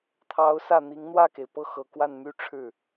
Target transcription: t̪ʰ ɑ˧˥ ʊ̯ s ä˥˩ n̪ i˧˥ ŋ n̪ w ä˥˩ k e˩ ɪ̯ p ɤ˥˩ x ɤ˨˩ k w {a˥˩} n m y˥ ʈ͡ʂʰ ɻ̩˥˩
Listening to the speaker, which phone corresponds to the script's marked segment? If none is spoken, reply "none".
a˥˩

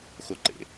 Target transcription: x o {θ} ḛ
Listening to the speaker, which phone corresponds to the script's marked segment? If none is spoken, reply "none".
ǃ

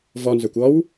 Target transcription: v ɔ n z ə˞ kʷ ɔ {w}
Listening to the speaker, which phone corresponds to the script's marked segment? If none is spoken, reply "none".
w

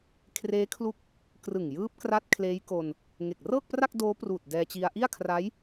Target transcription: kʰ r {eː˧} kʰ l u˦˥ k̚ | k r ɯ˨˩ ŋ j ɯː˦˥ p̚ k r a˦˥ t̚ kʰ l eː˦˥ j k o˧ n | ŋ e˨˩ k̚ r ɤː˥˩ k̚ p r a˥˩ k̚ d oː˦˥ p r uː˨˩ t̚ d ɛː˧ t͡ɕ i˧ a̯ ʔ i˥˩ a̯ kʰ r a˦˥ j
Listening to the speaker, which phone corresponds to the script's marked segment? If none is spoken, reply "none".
eː˦˥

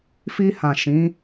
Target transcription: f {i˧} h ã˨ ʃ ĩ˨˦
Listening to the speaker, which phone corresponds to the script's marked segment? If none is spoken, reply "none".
i˧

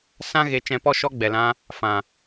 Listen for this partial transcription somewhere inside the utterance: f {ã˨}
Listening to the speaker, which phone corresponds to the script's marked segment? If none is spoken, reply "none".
ã˨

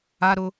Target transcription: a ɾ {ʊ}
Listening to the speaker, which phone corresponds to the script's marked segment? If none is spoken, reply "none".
ʊ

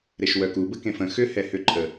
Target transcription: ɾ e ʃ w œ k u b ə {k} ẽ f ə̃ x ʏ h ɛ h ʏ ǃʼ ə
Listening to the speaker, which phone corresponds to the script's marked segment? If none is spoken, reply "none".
k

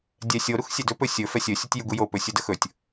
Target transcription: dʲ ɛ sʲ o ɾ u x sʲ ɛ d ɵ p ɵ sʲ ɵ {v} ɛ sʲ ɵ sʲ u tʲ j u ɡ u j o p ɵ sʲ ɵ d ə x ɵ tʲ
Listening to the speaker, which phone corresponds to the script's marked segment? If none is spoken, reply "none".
f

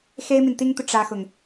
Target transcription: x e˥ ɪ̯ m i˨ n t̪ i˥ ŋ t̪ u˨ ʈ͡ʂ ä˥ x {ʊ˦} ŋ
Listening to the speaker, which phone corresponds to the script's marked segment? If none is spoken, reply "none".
ʊ˨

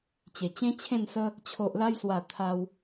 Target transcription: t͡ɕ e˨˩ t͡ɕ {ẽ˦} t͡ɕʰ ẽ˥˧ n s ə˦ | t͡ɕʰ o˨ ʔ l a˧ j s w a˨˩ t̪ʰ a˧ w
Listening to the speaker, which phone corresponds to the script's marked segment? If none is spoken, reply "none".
ẽ˦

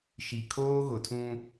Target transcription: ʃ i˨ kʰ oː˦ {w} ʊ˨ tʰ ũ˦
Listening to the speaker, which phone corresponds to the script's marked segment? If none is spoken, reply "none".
ɣ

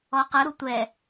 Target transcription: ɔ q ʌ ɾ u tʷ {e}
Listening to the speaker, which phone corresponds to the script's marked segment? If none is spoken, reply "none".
ɛ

